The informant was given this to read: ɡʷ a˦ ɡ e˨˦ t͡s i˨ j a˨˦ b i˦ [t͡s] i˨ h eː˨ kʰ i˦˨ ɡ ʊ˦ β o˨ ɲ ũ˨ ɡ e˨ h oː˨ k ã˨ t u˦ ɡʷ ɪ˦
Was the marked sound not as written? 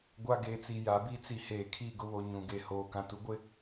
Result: no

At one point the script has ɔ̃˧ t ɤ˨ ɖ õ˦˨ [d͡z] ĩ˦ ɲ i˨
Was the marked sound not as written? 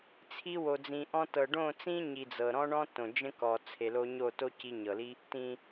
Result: yes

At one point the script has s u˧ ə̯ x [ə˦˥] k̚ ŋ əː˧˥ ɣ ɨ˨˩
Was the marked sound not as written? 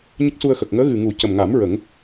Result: yes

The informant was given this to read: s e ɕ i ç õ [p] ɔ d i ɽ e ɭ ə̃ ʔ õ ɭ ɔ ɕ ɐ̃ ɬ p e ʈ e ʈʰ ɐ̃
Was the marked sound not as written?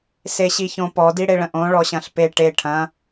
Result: no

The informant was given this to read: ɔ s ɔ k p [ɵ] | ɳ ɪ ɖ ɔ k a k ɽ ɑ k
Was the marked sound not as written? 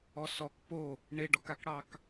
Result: yes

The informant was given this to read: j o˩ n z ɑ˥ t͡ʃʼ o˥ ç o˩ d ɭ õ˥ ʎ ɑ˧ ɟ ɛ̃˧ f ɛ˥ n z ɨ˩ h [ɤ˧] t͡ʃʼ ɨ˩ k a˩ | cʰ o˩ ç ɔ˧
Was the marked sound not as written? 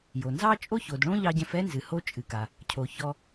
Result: yes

